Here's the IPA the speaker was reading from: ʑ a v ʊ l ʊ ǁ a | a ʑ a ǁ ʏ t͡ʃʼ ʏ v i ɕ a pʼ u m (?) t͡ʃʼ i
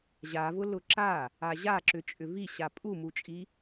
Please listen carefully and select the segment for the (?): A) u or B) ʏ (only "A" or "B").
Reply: A